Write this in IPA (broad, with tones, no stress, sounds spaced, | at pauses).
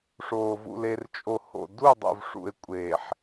ʂ oː˨ v ṵ˨ l e˨ r t͡ʃʼ o˨ h o̰˨ d u˦˨ dˤ o̰˨ v ʂ ṵ˨ e̯ kʷʼ eː˨ ħ